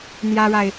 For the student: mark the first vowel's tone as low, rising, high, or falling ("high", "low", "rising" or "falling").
high